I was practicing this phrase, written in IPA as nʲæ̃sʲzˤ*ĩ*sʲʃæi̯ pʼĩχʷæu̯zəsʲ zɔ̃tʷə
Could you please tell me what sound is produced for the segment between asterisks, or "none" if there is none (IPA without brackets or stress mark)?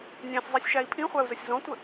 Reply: i